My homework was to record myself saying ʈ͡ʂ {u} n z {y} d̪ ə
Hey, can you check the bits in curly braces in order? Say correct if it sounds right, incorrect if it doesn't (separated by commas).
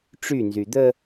incorrect, correct